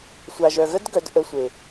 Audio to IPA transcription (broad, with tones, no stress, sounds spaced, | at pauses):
sʷ a˨ ʒ œ˨ ɣ ə˦ d ɡ œ˨˦ d ʔ ə˧ sʷ e˨